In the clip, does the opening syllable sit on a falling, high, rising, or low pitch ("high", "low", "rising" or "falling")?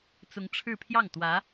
rising